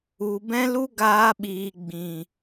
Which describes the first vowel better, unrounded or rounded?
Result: rounded